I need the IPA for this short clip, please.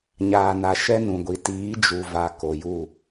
ɲaː˨na˨ ʃɛ˦nũ˨ɡʷi˨ tiː˨˦d͡ʒu˨va˨ ko˨ju˦˨

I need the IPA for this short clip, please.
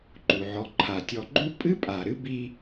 ǃu˩ʕɔ˨ ǃʰa˩tʲɔ˨ɡ͡ǃu˥ pʼɨ˥ pʼa˩ ɾɨ˥ bi˦

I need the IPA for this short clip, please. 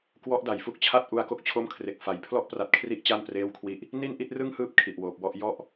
kwɔ˦˥ʔda˩˦jfu˥˩k̚t͡ɕʰa˥˩t̚ ʔu˦˥a̯ko˦˥k̚t͡ɕʰo˥˩mkʰre˨˩k̚ fa˨˩j pʰlɔ˥˩ʔpra˨˩t̚kʰri˦˥ʔ t͡ɕa˥˩npreː˥˩wkʰwi˥˩ʔ | ni˥˩nʔi˥˩t̚rɯ˥˩ŋhɯː˦˥p̚ kʰi˨˩ʔwoː˨˩p̚wɔ˥˩ʔ jɔ˥˩ʔ

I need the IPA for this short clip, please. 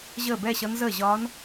ʑəː˥˩bɛ˥˧ɕʌ˧˥n zəː˥˩ʑɒː˧˥n

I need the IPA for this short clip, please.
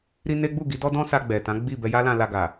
ɾi˧ ne˦ ɡ͡bu˦˨ɡi˨˦dɔ˦dɔ̃˦ sa˧ɡ͡bɛ˨tã˨˦ ɡ͡bi˦˨ bɛ˧ja˦lã˧ la˧ ɡa˨

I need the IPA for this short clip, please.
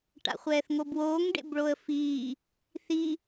ʈa̰χʷɛːθŋobwoːŋ ɖḛbɭoə̯fiː | θi

